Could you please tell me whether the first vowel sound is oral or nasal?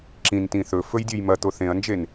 nasal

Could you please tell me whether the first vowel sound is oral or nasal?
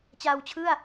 oral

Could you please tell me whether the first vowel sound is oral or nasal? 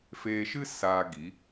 oral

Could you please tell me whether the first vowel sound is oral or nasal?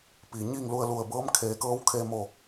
oral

